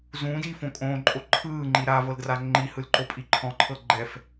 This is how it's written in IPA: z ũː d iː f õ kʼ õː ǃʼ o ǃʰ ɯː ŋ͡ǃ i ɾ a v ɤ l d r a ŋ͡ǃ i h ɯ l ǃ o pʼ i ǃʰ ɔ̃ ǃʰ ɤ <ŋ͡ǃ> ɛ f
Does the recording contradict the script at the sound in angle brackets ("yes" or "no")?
yes